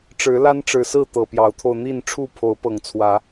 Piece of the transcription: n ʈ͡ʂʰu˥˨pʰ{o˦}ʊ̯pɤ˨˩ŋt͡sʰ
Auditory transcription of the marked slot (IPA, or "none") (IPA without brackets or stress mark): o˨˦